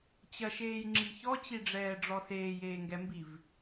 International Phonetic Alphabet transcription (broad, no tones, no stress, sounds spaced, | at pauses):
t͡ɕ ɐ ʃ eː j ŋ͡ǁ i ç ɔ t͡ɕ i ɖ͡ʐ ɛː ɖ͡ʐ ɔ s eː j eː ŋ ɡ ɛ m b i v